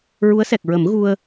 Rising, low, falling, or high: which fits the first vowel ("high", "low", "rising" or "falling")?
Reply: rising